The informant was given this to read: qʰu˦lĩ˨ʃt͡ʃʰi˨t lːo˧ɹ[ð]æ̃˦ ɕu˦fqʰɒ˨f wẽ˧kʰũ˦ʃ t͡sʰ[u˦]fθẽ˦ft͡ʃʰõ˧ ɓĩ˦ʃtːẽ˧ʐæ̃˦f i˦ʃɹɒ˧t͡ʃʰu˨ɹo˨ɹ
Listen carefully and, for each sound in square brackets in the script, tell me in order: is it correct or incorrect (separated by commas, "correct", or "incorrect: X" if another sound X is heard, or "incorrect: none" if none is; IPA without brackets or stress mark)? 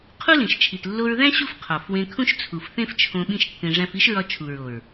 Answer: correct, incorrect: u˨